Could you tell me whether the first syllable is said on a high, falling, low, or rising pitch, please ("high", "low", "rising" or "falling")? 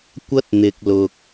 high